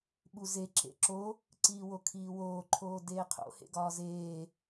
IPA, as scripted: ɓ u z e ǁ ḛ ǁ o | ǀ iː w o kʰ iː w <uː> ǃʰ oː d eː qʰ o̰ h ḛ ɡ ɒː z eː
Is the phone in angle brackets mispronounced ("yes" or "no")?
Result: yes